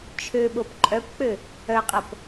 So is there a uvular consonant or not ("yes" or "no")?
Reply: yes